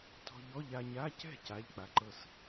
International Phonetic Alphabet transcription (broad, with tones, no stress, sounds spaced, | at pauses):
t ɔ̤˧ ʎ ɔ˧˥˧ ʎ a˧ ɲ a˧˥˧ c ɛ̤˥˩ c a˧˥˧ ʎ k͡p a˧ ǃ ɤ˥˩ s